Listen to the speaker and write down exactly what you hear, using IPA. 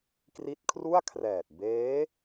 k r i˦˥ t̚ kʰ r u˥˩ a̯ kʰ r ɛː˨˩ t̚ b eː˦˥

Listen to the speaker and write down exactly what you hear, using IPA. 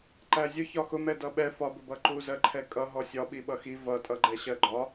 ǃ æ zʲ ʊ ç ɒ x ʊ m ɛ d ʌ ɓ ɛ f ɒ b ʊ b ʌ ǃ u z ɜ ǃʰ ɛ kʼ ʌ ɦ ɔ sʲ ɒ ɓ i ɓ ʌ x i v ʌ tʼ ʌ ɡ͡ǃ ɛ ɕ ɜ ɡ͡ǃ ɒ

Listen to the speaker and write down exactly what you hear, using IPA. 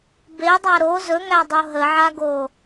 b e dˤ a ɾ o z ɵ ŋ æ dˤ o ɦ ə ʕ a ɡ o

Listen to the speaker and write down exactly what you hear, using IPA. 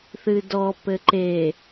θ ɨ d ɔ p ɘ ǃ e

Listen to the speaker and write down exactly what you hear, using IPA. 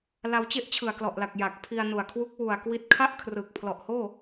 l a˧ w t͡ɕ e˥˩ ʔ t͡ɕʰ ɯ˨˩ a̯ k l ɔ˨˩ ʔ l a˨˩ k̚ j a˨˩ k̚ pʰ i˧ a̯ n u˨˩ a̯ kʰ w u˦˥ k̚ w u˨˩ a̯ k w i˦˥ t̚ kʰ a˥˩ ʔ kʰ r ɯ˨˩ k̚ pʰ l ɔ˨˩ ʔ h oː˥˩

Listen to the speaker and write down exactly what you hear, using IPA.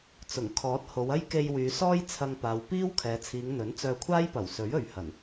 t͡s ʊ˨˩ ŋ kʰ ɔː˨˥ t̚ h o˨˧ w ɐ˥ j k e˧ j w yː˨˧ s ɔː˥ j t͡sʰ ɐ˧ ŋ p aː˨˧ w p iː˥ w kʰ ɛː˨˧ t͡sʰ iː˨˧ ŋ n̪ ɵ˨˥ n t͡s œː˧ kʷʰ aː˥ j p ɐ˨˩ w s ɵ˨˥ ɥ ɵ˨˧ ɥ h ɐ˨˩ n

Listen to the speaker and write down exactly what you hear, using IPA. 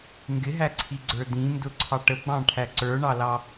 ŋ ɡ ɪ ɦ æ ǀʰ i ɡ͡ǀ ə˞ d ĩ n d ʊ ǀʰ ɑ ʈ ə ɡ͡b ɑ̃ ʈʰ æ ǀ ə˞ ɳ ɑ l ɑ

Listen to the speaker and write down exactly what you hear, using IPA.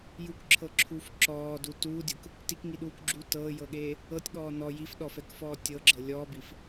j u k ǁʰ ɤ ǁʰ uː f ǁ ɔː d u t uː dʲ ɤ k | t i k ŋ i ɗ uː k ɡ͡ǁ uː t ɤː j ɤ ɠ eː | ɤ tʲ ɠ ɔː n ɔ j i f ɗ ɔ f ɛ k f ɔː tʲ ɤ ɡ͡ǁ ɤ lʲ ɔː b i f

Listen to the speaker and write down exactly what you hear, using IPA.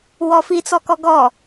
w ɔ f i t͡s ɔ k ɔ ɡ ɔ

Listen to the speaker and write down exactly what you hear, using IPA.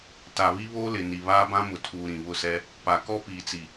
t a˨ β i˦ β oː˦ l ɪ˨ n i˨ β aː˦ b ã˦ m ʊ˨ tʰ uː˨ ɾ ĩ˨ β ʊ˦˨ s ɛ˦ | p a˨ k ɔ˦ p iː˨ t͡s i˨

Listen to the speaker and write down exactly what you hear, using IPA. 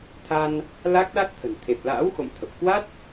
t̪ʰ a˧ n | l a˦˥ k̚ ɗ a˦˥ t̚ t̪ʰ ə̤˨˩ n t̪ʰ e˨˩ p̚ l a̰ː˧˥ w x o̰˧˨ m t̪ʰ ə˨˩ p̚ k w a˦˥ t̚

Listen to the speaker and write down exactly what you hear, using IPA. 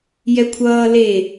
j ɛ kʷʰ ʌː l e

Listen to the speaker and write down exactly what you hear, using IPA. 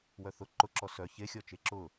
w œ θ ʊ ǃ ʊ ǁ ɔ s œ ç e xʲ ɔ t͡ʃ e ǁ ʊ

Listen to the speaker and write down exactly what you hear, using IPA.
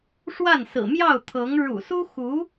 ʂ w a˥˩ n s ɹ̩˨˩ m j ɑ˥˩ ʊ̯ t̪ʰ ɤ˧˥ ŋ ɻ ṵ˨˩ s u˥ x u˧˥

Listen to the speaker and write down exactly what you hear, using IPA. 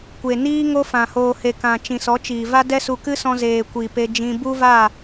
kʷ e˨ n iː˦ ŋ o˦ f ã˨ h oː˨ h e˨ k ã˨ t͡ʃ ĩ˨ s ɔ˨˦ t͡ʃ iː˨ v a˦ d ɛ˦ s u˧ k ɨ˦ s ɔ̃˧ z eː˨ kʷ i˨ p e˧ d͡ʒ ĩ˧ b u˦ v a˦˨

